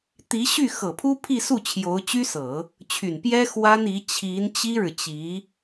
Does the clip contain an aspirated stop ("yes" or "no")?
yes